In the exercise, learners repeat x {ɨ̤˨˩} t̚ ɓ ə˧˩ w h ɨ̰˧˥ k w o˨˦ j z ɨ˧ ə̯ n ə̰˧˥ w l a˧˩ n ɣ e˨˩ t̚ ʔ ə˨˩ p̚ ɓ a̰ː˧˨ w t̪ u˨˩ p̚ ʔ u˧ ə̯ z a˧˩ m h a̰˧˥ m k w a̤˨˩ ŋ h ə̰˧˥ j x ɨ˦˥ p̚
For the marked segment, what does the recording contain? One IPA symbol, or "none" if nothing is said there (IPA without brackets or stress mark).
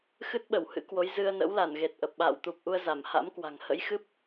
ɨ˦˥